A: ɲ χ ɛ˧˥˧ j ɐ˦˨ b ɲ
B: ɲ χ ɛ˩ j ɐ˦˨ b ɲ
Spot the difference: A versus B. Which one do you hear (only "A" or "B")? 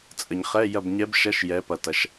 A